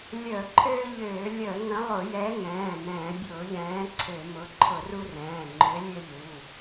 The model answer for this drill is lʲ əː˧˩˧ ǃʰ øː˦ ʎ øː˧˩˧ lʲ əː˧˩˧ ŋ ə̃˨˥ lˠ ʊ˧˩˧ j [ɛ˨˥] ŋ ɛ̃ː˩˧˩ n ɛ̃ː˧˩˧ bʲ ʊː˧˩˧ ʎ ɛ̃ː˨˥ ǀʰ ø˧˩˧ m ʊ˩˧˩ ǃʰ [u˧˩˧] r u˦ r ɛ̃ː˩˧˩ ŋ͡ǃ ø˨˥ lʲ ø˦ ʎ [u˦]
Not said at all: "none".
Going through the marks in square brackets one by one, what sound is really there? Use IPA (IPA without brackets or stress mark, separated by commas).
ɛ˨˥, ʊ˧˩˧, u˩˧˩